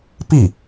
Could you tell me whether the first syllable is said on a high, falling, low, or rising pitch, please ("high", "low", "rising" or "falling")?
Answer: falling